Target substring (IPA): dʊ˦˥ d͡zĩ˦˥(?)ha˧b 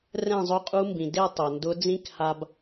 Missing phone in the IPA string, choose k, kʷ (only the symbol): k